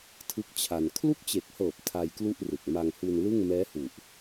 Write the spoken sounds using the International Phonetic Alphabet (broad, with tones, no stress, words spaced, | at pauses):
tʰɯ˥˩k̚t͡ɕʰa˧n kʰlu˥˩k̚t͡ɕe˨˩k̚hɤː˨˩p̚ tʰa˧jklu˥˩ʔrɯ˨˩k̚ ma˧ŋhu˧nlɯ˥˩ŋ mɛː˦˥hu˨˩ʔ